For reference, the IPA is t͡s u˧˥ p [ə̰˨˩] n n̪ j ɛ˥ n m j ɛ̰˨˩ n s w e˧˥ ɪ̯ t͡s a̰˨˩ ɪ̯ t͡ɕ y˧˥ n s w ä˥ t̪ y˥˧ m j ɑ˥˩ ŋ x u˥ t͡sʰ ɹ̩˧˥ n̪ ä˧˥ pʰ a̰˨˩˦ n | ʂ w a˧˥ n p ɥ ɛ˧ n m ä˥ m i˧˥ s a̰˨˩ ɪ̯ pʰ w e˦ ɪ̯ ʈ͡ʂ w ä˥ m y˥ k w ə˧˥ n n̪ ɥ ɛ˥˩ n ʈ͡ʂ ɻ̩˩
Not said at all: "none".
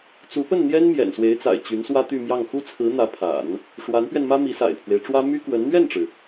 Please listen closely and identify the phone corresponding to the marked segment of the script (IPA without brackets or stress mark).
ə˥˩